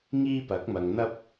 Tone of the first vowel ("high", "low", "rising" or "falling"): high